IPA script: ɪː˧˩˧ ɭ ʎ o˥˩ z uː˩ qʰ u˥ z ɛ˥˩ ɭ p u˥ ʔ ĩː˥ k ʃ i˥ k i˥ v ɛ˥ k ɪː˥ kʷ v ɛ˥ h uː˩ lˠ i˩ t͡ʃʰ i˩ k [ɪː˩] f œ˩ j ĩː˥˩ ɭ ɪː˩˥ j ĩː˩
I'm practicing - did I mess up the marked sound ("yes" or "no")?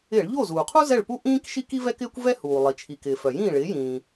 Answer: no